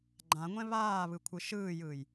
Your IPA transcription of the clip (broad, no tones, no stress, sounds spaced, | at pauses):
ɡ͡ǃ ã ŋʷ ɛ̃ β aː β ɯ kʷʰ ɯ ʃ ɯː j ɯː j